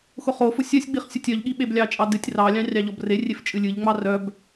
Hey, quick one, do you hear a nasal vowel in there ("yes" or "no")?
yes